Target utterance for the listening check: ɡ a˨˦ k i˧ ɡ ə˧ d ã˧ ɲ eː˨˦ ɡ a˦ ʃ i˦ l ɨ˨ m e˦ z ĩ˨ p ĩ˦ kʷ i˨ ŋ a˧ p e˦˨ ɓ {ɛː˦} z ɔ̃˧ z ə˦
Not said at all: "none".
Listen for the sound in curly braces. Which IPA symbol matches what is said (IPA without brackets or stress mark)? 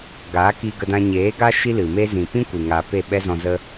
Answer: ɛ˦